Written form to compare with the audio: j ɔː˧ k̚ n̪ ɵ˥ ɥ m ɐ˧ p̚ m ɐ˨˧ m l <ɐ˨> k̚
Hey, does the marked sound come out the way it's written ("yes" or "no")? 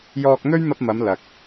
yes